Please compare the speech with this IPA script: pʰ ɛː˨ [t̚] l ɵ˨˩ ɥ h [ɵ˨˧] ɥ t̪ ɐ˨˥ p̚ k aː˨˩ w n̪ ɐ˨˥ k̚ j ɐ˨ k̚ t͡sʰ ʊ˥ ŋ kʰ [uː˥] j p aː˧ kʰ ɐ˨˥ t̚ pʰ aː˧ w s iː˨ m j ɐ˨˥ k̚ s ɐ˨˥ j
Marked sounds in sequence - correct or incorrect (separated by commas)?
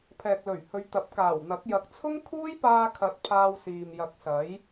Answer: incorrect, correct, correct